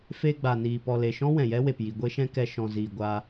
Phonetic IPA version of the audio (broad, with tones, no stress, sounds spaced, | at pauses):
f e˧ ɡ͡b a˨ n iː˨ p ɔ˨ l e˨ ʃ ɔ̃˦ w ɛ̃˨ j ɛ˦ w e˨ p j i˨ ɡʷ e˦ ʃ ɛ̃˦ k ɛ˧ ʃ ɔ̃˨ z iː˨ ɡʷ a˧